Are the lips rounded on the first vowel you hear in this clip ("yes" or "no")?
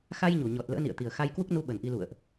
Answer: no